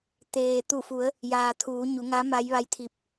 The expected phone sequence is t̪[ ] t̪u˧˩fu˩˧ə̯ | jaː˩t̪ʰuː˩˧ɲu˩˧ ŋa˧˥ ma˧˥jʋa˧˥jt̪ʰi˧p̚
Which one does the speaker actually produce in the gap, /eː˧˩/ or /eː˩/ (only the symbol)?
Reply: eː˩